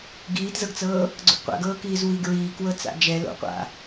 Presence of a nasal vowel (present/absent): absent